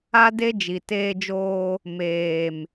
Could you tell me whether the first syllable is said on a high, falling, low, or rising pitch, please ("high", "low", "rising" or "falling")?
high